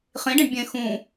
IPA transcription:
χ ĩ ɖ ĩ ɖ bʲ ẽ x ũ

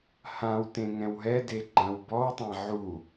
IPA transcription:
h ã w t ẽ ŋ ɛ̃ w ɦ ɛ d e ɡ͡ǃ ã w b ɔ w tˤ ã ʕ u

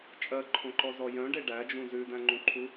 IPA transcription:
t͡ʃʼ ɜ ǃʰ õ ǃ ɔ z ɔ j œ̃ ɖ e ɖ æ d͡ʒ ũ z ʉ d æ̃ ŋ͡ǃ ũ ǃʰ u

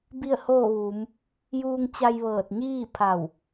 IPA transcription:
b i˥˨ ə̯ h oː˥˨ ʋ uː˩˧ m | j uː˧ ŋ t͡ɕ a˧ j ʋ ɤː˧˩ t̚ ɲ iː˥˨ pʰ a˧˩ w

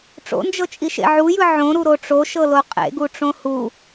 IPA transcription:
ʈ͡ʂ o̰ n d͡ʒ ɤ t͡ʃʼ i ʃ ḛ ʕ u j ɯ ʕ õ ɾ u ɾ o ʈ͡ʂ o ʃ ɤ l o qʼ ḛ ɡ u ʈ͡ʂ õ h u

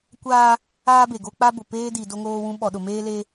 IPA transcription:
kʷ aː˦ | aː˦ b e˨ ɡ o˦ k͡p a˦ b ʊ˨ p eː˦ d i˨ d o˦ ŋ oː˦ w ũ˦ ɓ ɔ˨ ɗ ʊ˨ m eː˦ l e˦

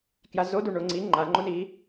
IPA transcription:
k j a z o d u ɳ o ŋ͡ǀ i ŋ͡ǃ a ŋ͡ǃ o n iː

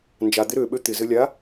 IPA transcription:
n d͡ʒ a d̪ ɪ ɾ ø ɓ ø t̪ ɪ z ɘ lʲ a

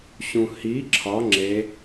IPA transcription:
ɕ ũ h i ǁʰ ɒ ŋ͡ǁ e

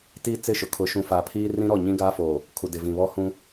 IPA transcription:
t iː˦ t͡s ɪ˦˨ ʃ ʊ˨ kʰ ʊ˨ ʃ ũ˨ f a˨ pʰ iː˦ r ĩ˦ ɾ ɔ˦˨ ɲ ĩ˦ ɡ aː˦ f oː˨ | kʰ u˨ d ɪ˨ v ĩ˨ β ɔ˦ h ũ˦

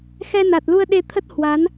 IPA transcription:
x ɛ˧ n a˨˩ t̚ l u˧ ə̯ ɗ e˧ t̪ʰ ə˦˥ t̚ h w a˨˦ n

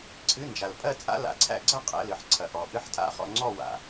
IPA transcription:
ǀʰ ɨ˧˥˧ n d͡ʒ a˨ l pʼ ɜ˥˧ t͡sʼ a̰˥ l a̰˨ ǀʰ æ̰˥˧ ɡ͡ǀ ɐ˥˧ qʼ ɛ̰˧˥˧ l ɨ˨ ħ ǀʰ ɐ˨ ʔ ɔ˨ ʔ ɨ˥ ħ tʼ a̰˥˧ χ ɔ̰˥˧ ŋ͡ǀ ɔ˥˧ w a̰˨

